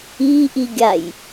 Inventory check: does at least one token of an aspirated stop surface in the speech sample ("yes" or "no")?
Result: no